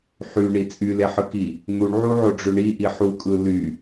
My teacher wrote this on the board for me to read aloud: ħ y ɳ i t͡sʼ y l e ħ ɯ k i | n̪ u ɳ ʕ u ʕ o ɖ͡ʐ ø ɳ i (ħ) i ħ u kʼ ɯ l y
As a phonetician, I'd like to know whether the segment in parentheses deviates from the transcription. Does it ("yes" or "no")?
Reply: yes